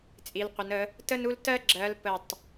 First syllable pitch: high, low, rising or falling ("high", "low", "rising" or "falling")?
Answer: rising